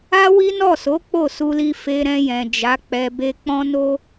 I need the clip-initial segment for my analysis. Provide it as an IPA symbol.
a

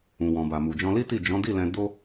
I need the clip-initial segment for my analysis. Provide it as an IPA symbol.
ũ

